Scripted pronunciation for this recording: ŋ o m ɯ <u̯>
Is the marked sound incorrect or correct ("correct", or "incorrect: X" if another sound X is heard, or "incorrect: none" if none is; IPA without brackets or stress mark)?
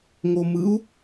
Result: correct